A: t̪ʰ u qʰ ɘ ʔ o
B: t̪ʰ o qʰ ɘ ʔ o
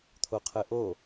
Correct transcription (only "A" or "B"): B